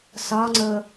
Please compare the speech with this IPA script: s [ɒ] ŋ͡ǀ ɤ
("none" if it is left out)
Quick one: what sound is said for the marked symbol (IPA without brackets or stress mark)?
ɒ